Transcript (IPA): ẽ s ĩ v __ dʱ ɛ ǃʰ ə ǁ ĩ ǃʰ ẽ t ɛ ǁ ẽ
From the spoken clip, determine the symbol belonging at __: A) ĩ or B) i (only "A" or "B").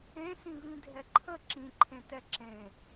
A